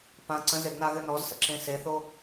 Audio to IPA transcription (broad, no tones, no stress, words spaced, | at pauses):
pã ǀə̃zeɡnaɣɘ nɔzsə̰ǁẽ seθo